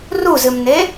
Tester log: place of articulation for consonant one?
alveolar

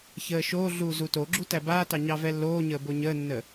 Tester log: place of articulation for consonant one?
palatal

